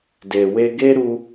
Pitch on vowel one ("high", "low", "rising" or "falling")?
low